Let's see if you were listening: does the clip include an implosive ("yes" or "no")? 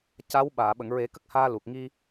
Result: yes